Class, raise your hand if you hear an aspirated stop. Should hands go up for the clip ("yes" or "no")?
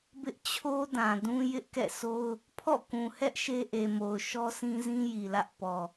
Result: yes